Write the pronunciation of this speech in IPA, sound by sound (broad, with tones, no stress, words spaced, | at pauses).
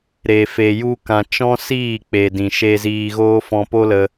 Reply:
ɾe˧fe˧ju˦kã˧ t͡ʃɔ̃˦siː˦˨k͡pe˨ dĩ˨ʃe˧ziː˧ ɣoː˦fɔ̃˧po˦lə˧